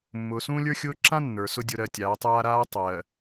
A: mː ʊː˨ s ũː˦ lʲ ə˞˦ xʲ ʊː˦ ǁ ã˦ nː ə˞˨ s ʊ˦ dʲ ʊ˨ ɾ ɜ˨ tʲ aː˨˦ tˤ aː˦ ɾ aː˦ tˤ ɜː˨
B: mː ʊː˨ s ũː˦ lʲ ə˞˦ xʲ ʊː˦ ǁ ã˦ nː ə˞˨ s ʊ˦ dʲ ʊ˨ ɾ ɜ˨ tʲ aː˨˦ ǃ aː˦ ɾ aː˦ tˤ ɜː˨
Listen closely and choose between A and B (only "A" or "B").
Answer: A